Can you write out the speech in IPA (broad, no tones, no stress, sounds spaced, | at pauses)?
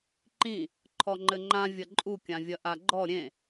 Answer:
ǃ ĩ | ǃʰ ɔ ŋ͡ǃ ɘ ŋ͡ǃ ã vʲ ɐ ǃʼ u kʲ ã vʲ ɐ ʔ a ɡ͡ǃ ɔ ɾʲ ẽ